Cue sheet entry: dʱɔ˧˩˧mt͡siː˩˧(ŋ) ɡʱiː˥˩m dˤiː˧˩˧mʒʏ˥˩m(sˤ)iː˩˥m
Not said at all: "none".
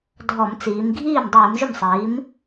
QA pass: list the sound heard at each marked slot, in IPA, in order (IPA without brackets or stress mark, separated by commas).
m, sˤ